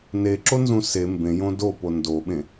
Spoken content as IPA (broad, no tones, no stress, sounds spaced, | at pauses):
n e ǁ o n z ũ s e m b ẽ j õ d o p o n d o ɓ ẽ